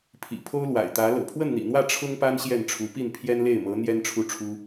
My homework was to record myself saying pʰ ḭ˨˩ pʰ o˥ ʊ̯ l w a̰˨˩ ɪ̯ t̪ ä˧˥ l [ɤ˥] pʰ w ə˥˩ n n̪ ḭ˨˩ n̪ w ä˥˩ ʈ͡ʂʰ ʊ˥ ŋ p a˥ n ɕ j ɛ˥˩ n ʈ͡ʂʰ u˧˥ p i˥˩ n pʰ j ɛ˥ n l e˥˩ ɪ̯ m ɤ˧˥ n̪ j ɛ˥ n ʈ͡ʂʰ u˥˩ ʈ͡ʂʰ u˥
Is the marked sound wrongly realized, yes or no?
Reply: yes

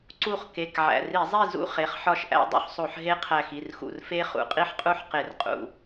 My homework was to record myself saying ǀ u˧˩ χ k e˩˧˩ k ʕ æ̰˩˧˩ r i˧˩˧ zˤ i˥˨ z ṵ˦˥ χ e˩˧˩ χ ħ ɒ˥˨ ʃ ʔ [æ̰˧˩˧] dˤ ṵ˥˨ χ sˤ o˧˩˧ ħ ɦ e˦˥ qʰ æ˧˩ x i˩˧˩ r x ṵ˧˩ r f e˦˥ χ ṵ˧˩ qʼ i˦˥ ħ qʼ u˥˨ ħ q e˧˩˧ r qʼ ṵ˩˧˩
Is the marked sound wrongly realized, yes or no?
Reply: yes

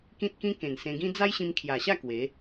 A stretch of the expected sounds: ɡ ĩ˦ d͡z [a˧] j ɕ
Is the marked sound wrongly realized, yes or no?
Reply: yes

